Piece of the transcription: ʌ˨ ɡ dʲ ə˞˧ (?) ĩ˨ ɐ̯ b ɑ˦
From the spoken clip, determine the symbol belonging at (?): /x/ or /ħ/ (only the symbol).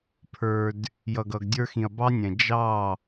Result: x